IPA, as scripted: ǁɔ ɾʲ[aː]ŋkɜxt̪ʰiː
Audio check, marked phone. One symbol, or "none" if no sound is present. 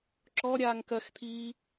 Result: aː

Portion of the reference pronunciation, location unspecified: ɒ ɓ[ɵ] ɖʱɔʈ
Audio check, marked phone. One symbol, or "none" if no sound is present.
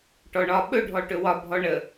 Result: ɵ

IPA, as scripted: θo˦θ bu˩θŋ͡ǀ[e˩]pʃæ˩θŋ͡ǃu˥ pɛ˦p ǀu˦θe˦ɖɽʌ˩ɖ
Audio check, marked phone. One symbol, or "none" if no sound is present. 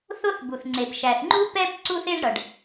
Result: e˩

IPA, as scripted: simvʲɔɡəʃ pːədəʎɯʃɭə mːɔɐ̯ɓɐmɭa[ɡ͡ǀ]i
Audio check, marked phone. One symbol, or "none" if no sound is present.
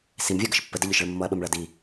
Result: d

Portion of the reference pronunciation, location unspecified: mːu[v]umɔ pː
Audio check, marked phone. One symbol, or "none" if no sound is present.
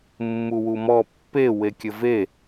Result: w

